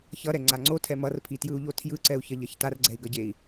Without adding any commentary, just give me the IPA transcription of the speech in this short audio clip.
ç ʌ ɾ ɛ ŋ͡ǀ a ŋ͡ǀ o tʰ ɛ m ʌ r pʰ i t j ɯ u̯ ʎ o tʰ j ɯ ǀ ɛ u̯ ç ʌ ʎ ʌ ç t a r ɡ͡ǀ ɛ i̯ ɡ ʌ ɟ e i̯

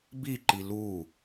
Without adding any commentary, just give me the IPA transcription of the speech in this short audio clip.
b i ǃ i l u

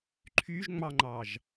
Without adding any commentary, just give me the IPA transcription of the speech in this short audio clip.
ǃʰ y ʒ ŋ͡m ɑ ŋ͡ǃ ɑ ʒ

